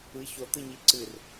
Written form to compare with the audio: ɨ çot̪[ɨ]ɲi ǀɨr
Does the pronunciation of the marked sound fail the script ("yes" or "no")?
no